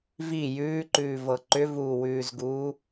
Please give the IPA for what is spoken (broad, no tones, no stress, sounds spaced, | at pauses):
v i j ʉː ǃ ʉː v ɤ ǃ ʏ v uː w ʉː z ɡ uː